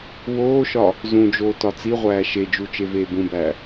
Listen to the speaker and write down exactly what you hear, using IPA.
w oː ʃ ɒ | z ũ d͡ʒ oː t ɒ t͡s i ʁʷ æː ʃ e d͡ʒ u t͡ʃ e v eː b ũ b æː

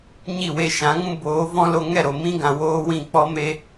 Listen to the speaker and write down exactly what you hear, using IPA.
ɲ i˦˨ w e˧ ʃ ã˨˦ ŋ ũ˦ b oː˨˦ v ɔ̃˦ l o˧ ŋ ɛ˦˨ ɾ o˨ m ĩ˦ ɡ ã˨ w oː˦ w ĩ˦˨ k͡p ɔ˧ m e˧

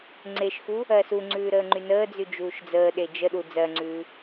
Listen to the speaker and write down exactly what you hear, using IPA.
ŋ͡ǀ e ʃ x u | ɜ s u ŋ͡ǀ ʉː ɾ əː ŋ͡ǃ y n əː d͡z y d͡ʒ uː ʃ d͡z əː ɗ e d͡ʒ ə ɗ u d͡z ɜ ŋ͡ǀ ʉː

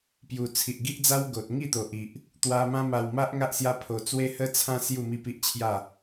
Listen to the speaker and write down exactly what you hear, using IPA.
p j u˨˩ t͡sʰ i˨ ʔ ɡ i˦ ʔ d͡z a˦ w ɡ o˨ t̚ ŋ i˥˧ t̪ o˨ ʔ i˨ ʔ | t̪ w a˧ m ã˦ m a˧ w m a˦ ʔ ŋ a˦ ʔ s j a˦ pʰ o˧ t͡s w e˦ h ə˦ t͡sʰ ã˦ s j u˥˧ m i˥˧ p i˦ ʔ t͡ɕʰ j a˥˧

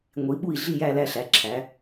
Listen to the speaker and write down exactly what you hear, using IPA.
ŋʷ i˨˦ ɓ u˥˧ i̯ ɮ i˥˧ j æ˥˧ l æ˥˧ ɬ æ˨˦ ǁʰ æ˨˦

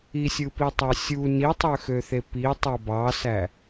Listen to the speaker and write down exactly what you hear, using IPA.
i sʲ ɯ p i tˤ ɑ sʲ u n i tˤ ø x ø θ e p i tˤ o b ɑ s æ

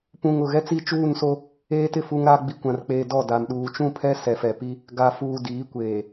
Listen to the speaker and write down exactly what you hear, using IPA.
p ũ˨ ŋ ʊ˨ ɣ ɛ˦ t͡s i˦ t͡ʃ uː˦˨ n s o˦ | eː˦ t ɪ˦˨ f u˦ ŋ ɾ a˦ ɡ͡b i˨ kʷ ã˨ r k͡p eː˨ d ɔ˦˨ d a˨ m ɗ uː˨ t͡ʃ ũ˦˨ pʰ ɛ˦ s ɛ˨ f ɛ˨ p i˦ | ɡ a˨ f uː˨ d iː˨˦ kʷ eː˨

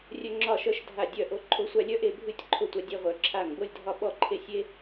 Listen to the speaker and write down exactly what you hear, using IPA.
rʲ œ˥ ŋ͡ǁ ɒ˥˧ ʃ œ˥ ʃ dʱ a˥˧ dʲ œ˥˧ ʔ o˥ ǃʰ o˥ sʷ a˥ lʲ œ˥ ʔ e˥˧ bʱ ɨ˥˧ tʲ ǃʰ o˥˧ tʷ a˥ dʲ e˥ ʁʷ œ˥ ǁʰ a˥˧ ŋ b o˥˧ lʲ dʱ ɒ˥˧ ɓ ɔ˥˧ ǃʰ e˥˧ sʲ e˥

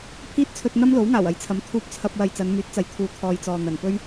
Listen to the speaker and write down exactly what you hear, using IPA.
pʰ iː˥ t̚ t͡sʰ ɵ˧ t̚ n̪ ɐ˥ m l o˨˥ w ŋ aː˨˩ w ɐ˨˥ j t͡sʰ ɐ˨˥ m t̪ʰ uː˧ p̚ t͡sʰ ɐ˧ p̚ w ɐ˨ j t͡s ɐ˨˧ n m yː˨˥ t̚ t͡s ɐ˨ j t̪ʰ uː˨ t̪ʰ ɔː˨ j t͡s ɔː˨ n̪ ɐ˨˩ n p ɵ˥ ɥ

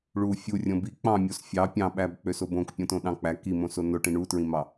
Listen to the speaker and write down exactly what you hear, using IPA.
ɭ u fʲ u rʲ õ b i k͡p ɑ̃ mʲ o s fʲ ɑ pʲ ɑ̃ ɓ æ b k͡p ø s o b õ k pʲ õ t õ ɗ ɑ̃ k͡p æ k i m õ s o n o ʈ ĩ ɳ u t ɹ ĩ m ɑ

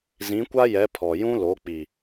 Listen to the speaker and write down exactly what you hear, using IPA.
z ĩ˨˦ kʷ a˦ j ɛ˨˦ pʰ ɔ˨ j ũ˦ l o˨˦ k͡p i˨

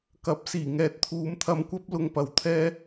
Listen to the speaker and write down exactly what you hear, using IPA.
k ɐ˨˥ p̚ s iː˨˩ ŋ ɛː˨ t̚ t̪ʰ uː˨˧ m t̪ʰ ɐ˧ m kʷ ɐ˥ p̚ l ʊ˧ ŋ p ɐ˨ w t̪ʰ ɛː˥

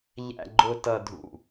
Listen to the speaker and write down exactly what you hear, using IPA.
ʎ æ̰˨ ɡ͡ǃ ʊ˨ t ʌ˨ dʱ ṵ˨

